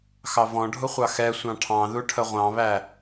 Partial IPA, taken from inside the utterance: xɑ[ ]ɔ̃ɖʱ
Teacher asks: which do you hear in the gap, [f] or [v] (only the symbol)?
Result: v